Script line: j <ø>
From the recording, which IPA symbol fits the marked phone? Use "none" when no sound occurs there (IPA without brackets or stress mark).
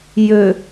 ø